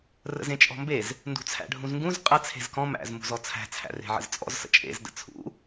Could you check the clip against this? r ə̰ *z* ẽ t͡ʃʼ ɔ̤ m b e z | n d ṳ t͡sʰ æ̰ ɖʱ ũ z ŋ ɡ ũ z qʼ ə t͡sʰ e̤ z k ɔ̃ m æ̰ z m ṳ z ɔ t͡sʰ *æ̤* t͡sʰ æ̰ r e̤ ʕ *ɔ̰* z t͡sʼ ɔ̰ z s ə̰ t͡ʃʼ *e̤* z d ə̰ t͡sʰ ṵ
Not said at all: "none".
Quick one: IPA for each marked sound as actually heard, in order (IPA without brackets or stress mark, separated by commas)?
z, æ̤, ə̰, ḛ